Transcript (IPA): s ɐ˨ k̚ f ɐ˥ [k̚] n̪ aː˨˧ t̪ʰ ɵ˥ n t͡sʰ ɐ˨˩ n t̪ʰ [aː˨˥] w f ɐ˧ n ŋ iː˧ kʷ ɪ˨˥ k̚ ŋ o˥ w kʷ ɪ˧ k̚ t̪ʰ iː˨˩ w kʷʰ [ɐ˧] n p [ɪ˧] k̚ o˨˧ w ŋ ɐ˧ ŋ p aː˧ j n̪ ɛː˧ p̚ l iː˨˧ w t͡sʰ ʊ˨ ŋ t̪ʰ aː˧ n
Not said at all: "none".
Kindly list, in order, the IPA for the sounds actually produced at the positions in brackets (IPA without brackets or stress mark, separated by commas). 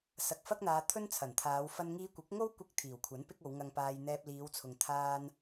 k̚, aː˨˧, ɐ˨˥, ɪ˥